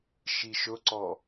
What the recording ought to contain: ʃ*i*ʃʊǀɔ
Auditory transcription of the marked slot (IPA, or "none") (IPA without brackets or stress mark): i